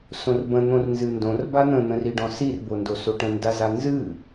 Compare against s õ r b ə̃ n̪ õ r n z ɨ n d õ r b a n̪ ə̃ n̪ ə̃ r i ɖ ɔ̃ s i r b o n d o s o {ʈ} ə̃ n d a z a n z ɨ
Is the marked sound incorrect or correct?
correct